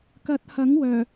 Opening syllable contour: rising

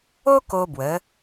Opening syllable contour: high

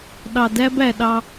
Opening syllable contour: low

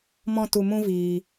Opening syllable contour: high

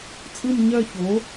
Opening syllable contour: falling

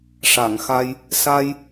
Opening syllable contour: low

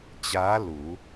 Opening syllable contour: rising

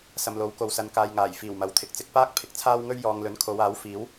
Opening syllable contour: low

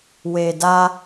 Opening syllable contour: low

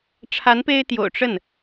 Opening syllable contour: rising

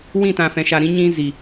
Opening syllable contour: falling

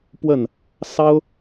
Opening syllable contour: falling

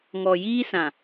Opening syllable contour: low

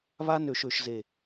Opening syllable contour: high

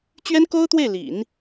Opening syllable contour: high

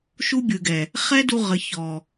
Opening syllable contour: high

